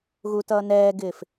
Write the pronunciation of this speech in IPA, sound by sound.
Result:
ɣ u t ʌː n ɛː ɡ ɪː f

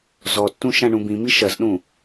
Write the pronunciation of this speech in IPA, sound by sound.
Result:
z ɔ tː ũ ʃ ã ɳ ũ b ĩ m i ʃ ɐ z ɗ ũ

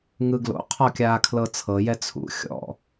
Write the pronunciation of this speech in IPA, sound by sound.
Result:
ŋ ɯ ɡ l o̰ qʰ ɔ kʲ aː kʰ l ɤ t͡sʰ ɤ j ɛ t͡sʰ ṵ xʲ ɔ̰

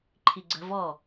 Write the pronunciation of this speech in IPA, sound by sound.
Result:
ǃʰ i ɡ͡ǀ ə̤ v ɔ

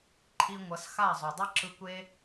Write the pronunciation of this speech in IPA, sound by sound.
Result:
ǃʰ i˧ ŋʷ ʌ˨˦ s x a˦˨ zˤ u˨ dˤ ɯ˦ ǁ ɯ˧ kʷ e˦

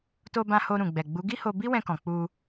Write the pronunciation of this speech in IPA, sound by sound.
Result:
t o˧ b ã˧ h o˧ ɾ ũ˨ ɡ͡b ɛ˨ ɡ͡b u˨˦ ɡ i˦ h o˧ b i˦ w ɛ̃˧ k ɔ̃˨ k͡p u˧

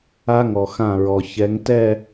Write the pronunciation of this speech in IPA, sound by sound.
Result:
a˦ ŋ ɔ˨ x ã˦˨ ɹ ɔ˨ ç ɛ˨˦ ŋ t ɛ˦˨

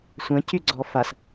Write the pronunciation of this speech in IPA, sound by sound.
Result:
sʷ ɐ̃ c y ɡ͡ǀ ɔ f a s

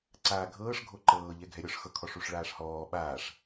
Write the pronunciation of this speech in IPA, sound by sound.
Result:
ǀ aː ɡʱ ɤː ʂ ɡʱ o ǃ ɤː ʎ ɛ ɡʱ ɛ ɾʲ ɔ ʂ x ɤ kʰ ɔ ʂ u ʂ ɭ aː ʂ h ɔː ɓ aː ʂ

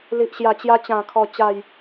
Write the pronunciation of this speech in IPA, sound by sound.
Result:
l i˨ ʔ ɕ j a˨˩ t͡ɕ j a˧ t͡ɕ ã˨˩ kʰ ɔ˨˩ t͡ɕ a˨˩ j

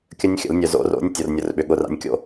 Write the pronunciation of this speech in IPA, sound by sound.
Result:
kʲ ə˦ nʲ xʲ ə̰˨˩˦ l nʲ œ˨ z o̰˨˦ r o̰˨˦ nʲ tʲ o˨ r nʲ ʊ˨˩˦ r ɓ ʏ˨ ɠ ʊ˦˨ r a̰˦ nʲ kʲ o̰˦

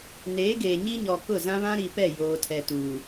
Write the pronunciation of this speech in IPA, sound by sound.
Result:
n eː˨˦ ɡ eː˨ ɲ i˦ ɲ ɔ˨ k ʊ˦˨ z ã˦ β ã˦ ɾ i˨ p ɛ˦˨ j oː˨ tʰ ɛ˨ t uː˨

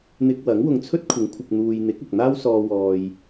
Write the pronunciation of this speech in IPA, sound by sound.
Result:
n̪ ɪ˧ k̚ w ɐ˨˥ ŋ w ʊ˨˧ ŋ t͡sʰ ɵ˥ t̚ kʷʰ ɪ˨˥ ŋ kʷʰ ɪ˨ k̚ n̪ uː˨ j n̪ ɪ˨˥ k̚ ʊ˨ k̚ n̪ aː˥ w s ɔː˧ w ɔː˧ j

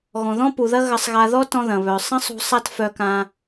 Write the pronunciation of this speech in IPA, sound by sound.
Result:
ɣ ɔ̃˩ ð ɔ̃˥ p u˩ ð ɐ˥ ɣ ɐ˧ sˤ ɣ a˧ ð ɔ˥ t ɔ̃˧ ð ɐ̃˩ β œ˩ sˤ ɐ̃˥ sˤ ṳ˧ sˤ a˥ t f œ˧ k ã˧

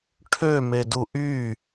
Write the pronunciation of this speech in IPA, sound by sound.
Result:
ʈʰ ø m e d u ʔ y

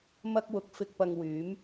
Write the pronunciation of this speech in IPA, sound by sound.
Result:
m ɐ˧ k̚ w ʊ˨˥ k̚ f ɪ˧ k̚ p ɐ˧ ŋ w yː˨˥ m

